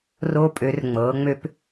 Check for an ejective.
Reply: present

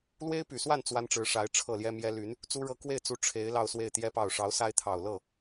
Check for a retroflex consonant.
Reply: present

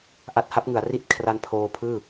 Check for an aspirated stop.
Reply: present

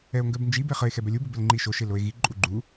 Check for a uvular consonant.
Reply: present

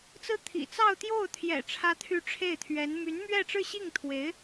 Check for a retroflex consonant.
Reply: present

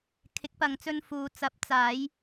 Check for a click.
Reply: absent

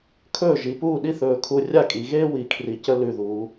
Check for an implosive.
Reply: present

